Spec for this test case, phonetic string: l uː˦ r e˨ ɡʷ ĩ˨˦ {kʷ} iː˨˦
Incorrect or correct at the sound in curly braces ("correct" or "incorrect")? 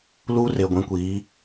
correct